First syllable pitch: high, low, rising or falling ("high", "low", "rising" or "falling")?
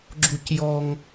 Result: falling